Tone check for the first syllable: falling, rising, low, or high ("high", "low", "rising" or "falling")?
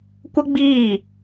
high